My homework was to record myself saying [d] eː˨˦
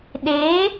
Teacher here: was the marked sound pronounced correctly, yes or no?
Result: no